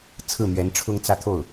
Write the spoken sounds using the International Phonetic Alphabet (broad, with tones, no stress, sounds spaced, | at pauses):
t͡sʰ ɹ̩˥˩ m ɥ ɛ˧˥ n ʈ͡ʂʰ ʊ˥ ŋ t͡s ä˥˧ t̪ʰ o˥˩ ʊ̯